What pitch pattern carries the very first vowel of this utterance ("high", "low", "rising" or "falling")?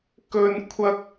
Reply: high